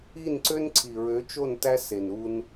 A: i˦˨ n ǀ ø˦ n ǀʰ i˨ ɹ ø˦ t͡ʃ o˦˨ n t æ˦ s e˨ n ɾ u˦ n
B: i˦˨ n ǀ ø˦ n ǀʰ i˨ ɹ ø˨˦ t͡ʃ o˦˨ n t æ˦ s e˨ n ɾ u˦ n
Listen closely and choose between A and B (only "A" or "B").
B